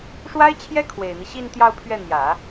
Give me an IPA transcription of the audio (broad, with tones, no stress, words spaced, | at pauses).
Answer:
ʂwa˥ɪ̯t͡ɕʰjɛ˥ kʰwe˨˩ɪ̯n̪i˦ɕi˥˧n t̪jɑ˥˧ʊ̯pʰɥɛ˥˩n̪jä˨˩˦